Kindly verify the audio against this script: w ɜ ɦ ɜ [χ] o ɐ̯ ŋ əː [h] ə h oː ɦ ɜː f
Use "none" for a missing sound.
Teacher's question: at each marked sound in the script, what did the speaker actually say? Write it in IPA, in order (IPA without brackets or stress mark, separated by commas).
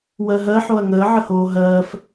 ħ, ʕ